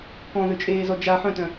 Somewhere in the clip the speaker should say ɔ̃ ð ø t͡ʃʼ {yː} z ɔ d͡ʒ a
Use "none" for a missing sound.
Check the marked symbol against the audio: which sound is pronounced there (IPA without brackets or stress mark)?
eː